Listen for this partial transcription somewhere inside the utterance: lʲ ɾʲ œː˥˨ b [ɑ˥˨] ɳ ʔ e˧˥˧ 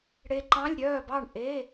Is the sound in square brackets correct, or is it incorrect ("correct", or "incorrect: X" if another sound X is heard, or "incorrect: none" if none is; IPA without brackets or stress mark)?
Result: correct